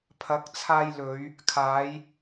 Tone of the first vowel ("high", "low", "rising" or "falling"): rising